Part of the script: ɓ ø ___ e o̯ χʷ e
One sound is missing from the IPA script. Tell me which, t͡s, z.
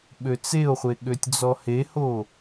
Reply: t͡s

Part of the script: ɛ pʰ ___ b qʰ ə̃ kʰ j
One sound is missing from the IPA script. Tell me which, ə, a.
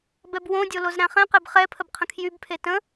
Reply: ə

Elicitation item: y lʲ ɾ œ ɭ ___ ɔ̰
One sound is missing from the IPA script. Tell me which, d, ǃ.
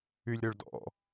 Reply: d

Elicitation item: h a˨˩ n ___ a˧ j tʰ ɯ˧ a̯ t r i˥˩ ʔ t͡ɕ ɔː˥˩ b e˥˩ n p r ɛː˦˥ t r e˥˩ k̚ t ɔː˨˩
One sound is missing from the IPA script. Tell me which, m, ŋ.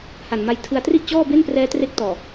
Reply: m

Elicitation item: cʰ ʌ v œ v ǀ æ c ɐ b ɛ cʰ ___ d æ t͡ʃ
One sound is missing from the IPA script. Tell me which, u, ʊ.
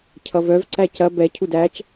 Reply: u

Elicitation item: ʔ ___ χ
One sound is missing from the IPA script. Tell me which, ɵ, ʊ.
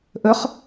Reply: ɵ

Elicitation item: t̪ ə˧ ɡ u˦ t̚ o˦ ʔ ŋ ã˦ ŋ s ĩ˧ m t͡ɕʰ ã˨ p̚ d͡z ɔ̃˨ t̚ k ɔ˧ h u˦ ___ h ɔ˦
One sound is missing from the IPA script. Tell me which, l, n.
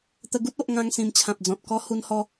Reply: n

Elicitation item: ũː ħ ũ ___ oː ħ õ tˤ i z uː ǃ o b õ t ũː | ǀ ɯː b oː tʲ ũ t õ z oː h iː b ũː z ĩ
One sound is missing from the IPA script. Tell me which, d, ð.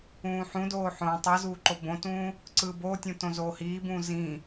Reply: d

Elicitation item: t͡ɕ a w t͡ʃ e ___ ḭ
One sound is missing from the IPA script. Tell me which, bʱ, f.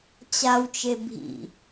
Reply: bʱ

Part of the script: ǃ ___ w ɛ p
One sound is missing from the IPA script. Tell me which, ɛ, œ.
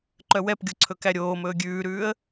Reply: œ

